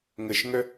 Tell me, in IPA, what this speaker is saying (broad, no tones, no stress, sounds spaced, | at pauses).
ŋ ə ʃ ŋ œ